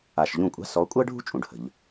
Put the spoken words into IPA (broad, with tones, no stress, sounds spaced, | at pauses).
a˨˩ ʃ ʎ ũ˥˩ kʷʼ a̤˥ s ɔ˨˦ kʷʼ əː˥ ɖʱ ṳ˥ t͡ʃʼ ũ˨˩ ɖ h ə̤˧˩˧ ʎ